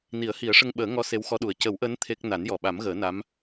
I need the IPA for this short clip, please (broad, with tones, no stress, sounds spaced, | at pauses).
n i˨˩˦ ə̯ h i˨˩˦ ə̯ ʂ ə˧ ŋ ɓ əː˨˩˦ ŋ ɔ˧˥ s e˧˥ w x ɔ˧˥ ɗ u˨˩ ə̯ c ə˨˩˦ w ʔ əː˧˥ n t̪ʰ e˦˥ k̚ n a˨˩˦ n j ɔ˨˩ ɓ a˨˩˦ m ɣ əː˨˩˦ n a˧˥ m